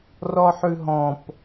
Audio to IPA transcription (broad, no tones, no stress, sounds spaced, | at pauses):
r ɔ ħ ʉ ɦ ɔ̃ p